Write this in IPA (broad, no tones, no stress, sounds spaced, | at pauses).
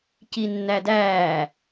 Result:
c i nː æ d æː